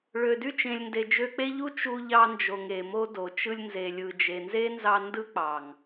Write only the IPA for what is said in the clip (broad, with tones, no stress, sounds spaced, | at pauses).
ɭ ø˨ d y˧ t͡ʃ ẽ˨ lʲ n d e˨ d͡ʒ ø˧ k͡p e˦ ʎ u˦ t͡ʃ u˧ ʎ ɑ˧ n d͡ʒ o˨ ŋ e˨ m o˦ d o˨ t͡ʃ ɯ˧ lʲ n z e˨ lʲ ɯ˨ d͡ʒ e˨ n z e˦ n z ɑ˧ n d ɯ˦ k͡p ɑ˨ ŋ